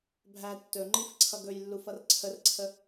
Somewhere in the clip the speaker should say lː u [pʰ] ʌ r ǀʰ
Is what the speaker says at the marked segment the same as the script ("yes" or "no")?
no